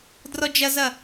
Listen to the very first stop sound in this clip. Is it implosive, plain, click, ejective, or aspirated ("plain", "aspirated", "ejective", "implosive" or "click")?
plain